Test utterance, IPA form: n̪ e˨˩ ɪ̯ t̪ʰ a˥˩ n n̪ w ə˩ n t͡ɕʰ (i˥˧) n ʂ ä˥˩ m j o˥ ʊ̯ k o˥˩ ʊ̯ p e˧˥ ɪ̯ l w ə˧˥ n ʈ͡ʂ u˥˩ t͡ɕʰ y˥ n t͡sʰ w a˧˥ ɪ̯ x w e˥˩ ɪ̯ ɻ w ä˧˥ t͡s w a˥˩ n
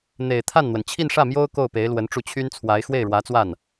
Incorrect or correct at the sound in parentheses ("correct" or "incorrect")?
correct